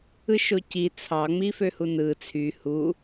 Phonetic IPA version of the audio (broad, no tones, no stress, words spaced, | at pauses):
ɯʃoci t͡sʰɑ ŋ͡miføhunɯ t͡sʰy hu